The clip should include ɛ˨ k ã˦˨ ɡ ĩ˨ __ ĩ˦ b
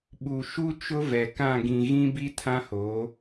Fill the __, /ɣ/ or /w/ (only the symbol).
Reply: ɣ